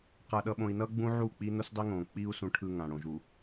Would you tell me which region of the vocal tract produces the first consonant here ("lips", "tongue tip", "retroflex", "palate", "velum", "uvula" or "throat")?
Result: uvula